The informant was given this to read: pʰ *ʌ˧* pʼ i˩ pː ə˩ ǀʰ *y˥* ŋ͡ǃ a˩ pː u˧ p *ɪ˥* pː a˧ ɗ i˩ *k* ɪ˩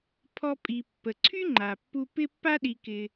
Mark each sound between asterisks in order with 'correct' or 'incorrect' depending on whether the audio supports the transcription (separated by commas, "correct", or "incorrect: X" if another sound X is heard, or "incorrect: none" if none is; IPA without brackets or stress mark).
incorrect: ɔ˧, correct, incorrect: ɪ˧, correct